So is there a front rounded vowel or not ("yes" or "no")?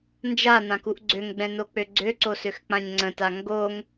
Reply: yes